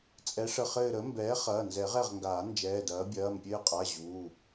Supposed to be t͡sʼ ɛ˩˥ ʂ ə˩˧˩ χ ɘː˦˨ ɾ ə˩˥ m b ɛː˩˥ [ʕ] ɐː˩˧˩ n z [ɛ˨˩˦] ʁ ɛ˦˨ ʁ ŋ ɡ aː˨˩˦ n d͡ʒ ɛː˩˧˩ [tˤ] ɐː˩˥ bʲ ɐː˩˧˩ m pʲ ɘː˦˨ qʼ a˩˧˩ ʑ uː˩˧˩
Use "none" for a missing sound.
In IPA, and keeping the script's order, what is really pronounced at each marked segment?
χ, ɛ˨˩˦, d

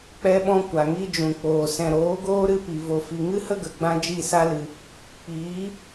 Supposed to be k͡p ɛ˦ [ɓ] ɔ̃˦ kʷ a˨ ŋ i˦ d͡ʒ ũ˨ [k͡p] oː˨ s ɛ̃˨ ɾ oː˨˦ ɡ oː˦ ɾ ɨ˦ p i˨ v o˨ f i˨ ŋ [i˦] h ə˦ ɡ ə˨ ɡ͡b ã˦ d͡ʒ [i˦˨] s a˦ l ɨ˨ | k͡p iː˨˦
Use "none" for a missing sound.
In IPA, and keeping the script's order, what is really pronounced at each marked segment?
ɓ, k͡p, ɨ˦, i˦˨

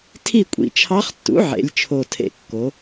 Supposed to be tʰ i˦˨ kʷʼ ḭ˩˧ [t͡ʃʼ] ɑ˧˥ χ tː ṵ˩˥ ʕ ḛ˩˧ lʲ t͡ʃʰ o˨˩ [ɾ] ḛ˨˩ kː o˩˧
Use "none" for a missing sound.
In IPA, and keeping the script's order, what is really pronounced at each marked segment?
t͡ʃʰ, tʰ

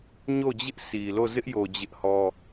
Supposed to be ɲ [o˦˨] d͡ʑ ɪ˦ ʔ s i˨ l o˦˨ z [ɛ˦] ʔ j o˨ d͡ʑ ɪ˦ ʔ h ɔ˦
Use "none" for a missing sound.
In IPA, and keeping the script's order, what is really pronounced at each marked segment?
o˦˨, ɪ˦

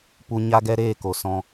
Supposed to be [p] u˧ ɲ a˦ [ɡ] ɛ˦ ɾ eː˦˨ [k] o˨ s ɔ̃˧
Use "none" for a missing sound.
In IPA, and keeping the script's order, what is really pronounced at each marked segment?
p, ɡ, k

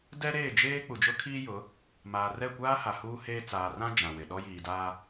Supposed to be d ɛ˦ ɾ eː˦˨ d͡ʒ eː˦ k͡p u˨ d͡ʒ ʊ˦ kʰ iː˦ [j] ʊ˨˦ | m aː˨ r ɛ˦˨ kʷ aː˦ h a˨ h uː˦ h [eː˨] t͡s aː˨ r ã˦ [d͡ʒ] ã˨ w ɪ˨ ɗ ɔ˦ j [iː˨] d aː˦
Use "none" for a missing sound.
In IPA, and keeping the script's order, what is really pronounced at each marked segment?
j, eː˦, d͡ʒ, iː˨

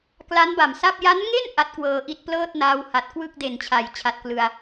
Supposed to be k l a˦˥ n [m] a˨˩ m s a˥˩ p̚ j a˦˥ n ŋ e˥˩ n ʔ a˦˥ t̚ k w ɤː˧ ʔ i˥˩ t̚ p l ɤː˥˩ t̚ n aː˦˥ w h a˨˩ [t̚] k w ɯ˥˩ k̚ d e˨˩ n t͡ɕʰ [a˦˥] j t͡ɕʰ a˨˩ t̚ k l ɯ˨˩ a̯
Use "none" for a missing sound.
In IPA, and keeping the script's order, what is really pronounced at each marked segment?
b, t̚, a˩˦

